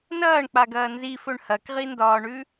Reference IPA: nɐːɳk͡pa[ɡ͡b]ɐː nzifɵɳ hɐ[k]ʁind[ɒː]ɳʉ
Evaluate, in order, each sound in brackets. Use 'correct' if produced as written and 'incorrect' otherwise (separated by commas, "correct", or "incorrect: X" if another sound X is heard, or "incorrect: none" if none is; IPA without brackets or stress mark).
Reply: incorrect: ɡ, correct, correct